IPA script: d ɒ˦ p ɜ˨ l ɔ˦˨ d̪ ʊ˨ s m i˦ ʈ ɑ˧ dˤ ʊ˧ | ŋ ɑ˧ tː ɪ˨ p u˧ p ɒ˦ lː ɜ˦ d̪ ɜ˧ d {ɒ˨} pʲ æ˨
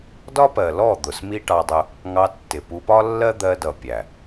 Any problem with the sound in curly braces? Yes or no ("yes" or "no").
yes